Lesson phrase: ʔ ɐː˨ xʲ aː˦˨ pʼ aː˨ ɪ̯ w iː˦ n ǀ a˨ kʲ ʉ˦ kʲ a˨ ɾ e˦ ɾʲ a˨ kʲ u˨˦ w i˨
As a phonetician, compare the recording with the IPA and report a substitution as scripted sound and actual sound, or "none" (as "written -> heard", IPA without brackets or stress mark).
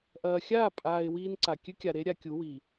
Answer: none